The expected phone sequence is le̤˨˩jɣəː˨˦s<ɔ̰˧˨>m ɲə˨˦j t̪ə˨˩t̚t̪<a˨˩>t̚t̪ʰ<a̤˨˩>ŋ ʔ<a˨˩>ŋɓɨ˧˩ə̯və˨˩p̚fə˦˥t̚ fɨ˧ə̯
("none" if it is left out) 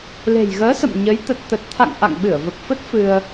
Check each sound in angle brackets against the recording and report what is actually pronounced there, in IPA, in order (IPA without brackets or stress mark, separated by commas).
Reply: ə̰˧˨, ə˨˩, a̰˧˨, a̰˧˨